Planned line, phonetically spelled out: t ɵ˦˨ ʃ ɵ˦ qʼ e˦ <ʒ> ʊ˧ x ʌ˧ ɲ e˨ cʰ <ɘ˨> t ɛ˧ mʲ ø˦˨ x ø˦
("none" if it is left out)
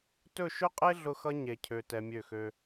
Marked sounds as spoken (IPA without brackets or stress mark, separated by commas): ɮ, ø˨